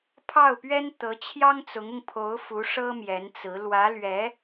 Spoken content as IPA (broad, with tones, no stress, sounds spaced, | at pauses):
pʰ ɑ˥˩ ʊ̯ p ɥ ɛ˥ n t̪ ɤ˧˥ t͡ɕʰ j ɑ˥ ŋ t͡s ʊ˧˥ ŋ ʊ˧ ŋ pʰ o˧˥ ʊ̯ f u˧˥ ʂ ɤ˥ m j ɛ˧˥ n t͡s ɹ̩˧˥ l w ä˧˥ l ɥ ɛ˧˥